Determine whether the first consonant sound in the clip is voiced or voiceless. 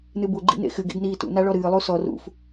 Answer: voiced